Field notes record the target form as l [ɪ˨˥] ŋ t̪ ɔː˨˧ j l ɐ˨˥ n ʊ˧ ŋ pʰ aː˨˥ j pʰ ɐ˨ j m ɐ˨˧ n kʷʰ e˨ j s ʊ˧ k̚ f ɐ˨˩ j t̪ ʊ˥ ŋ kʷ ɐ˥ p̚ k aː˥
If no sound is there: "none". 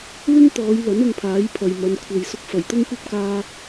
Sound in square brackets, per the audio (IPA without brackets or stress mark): ɪ˥